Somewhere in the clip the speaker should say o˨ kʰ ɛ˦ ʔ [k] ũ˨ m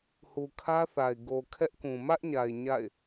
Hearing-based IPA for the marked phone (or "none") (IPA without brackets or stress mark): k